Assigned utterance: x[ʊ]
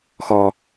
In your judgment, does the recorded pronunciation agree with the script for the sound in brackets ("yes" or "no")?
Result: no